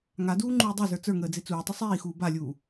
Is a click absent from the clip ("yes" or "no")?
no